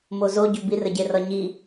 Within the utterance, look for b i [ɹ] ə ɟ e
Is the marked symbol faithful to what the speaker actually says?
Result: no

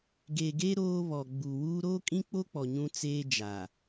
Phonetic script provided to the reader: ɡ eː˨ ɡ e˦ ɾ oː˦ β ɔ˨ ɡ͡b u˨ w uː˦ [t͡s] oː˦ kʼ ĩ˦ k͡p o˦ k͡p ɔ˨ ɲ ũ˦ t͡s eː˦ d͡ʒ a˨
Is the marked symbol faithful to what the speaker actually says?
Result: no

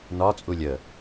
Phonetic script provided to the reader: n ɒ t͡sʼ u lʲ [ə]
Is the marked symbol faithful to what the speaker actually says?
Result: yes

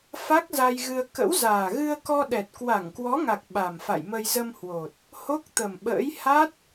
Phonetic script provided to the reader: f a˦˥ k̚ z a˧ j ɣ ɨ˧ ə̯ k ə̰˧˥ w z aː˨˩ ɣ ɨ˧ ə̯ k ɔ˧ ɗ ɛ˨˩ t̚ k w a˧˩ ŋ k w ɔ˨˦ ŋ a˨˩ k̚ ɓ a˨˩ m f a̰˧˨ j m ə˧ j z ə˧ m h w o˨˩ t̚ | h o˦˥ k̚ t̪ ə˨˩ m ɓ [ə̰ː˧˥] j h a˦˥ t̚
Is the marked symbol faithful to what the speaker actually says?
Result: yes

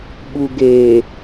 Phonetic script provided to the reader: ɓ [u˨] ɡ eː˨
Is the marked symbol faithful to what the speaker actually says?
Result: yes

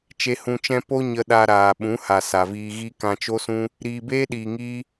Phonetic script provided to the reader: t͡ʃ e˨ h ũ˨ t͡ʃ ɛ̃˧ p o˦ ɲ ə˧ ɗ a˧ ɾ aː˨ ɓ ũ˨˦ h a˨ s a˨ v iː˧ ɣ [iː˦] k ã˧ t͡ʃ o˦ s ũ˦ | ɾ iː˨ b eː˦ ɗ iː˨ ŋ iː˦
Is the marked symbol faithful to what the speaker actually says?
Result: no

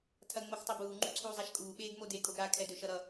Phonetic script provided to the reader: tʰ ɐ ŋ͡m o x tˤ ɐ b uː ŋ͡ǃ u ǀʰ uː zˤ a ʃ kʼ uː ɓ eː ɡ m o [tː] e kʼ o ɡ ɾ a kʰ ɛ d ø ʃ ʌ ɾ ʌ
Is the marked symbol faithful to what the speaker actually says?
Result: no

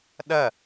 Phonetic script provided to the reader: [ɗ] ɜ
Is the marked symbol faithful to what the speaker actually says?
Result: yes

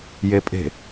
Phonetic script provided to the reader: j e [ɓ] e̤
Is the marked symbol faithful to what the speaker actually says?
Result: no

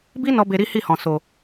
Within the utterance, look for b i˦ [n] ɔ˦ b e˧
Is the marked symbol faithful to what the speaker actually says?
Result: yes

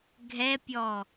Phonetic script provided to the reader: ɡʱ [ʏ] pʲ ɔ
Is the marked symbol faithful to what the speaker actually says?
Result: no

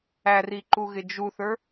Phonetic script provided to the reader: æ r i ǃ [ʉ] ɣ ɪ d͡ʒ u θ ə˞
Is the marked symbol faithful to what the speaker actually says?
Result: no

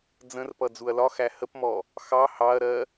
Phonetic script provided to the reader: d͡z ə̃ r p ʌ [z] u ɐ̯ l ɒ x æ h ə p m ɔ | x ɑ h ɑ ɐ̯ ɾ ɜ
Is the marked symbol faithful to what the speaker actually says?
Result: no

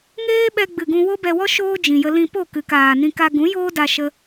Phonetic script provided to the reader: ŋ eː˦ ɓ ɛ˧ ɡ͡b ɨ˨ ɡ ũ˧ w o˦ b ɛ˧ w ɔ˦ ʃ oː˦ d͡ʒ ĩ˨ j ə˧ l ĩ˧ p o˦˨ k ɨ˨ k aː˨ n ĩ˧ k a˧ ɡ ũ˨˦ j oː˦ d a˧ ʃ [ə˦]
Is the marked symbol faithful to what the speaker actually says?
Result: yes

